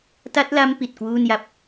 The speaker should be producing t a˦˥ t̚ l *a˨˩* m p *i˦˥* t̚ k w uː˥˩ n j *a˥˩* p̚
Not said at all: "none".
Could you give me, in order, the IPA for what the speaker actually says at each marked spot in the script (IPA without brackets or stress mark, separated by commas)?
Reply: a˦˥, i˨˩, a˦˥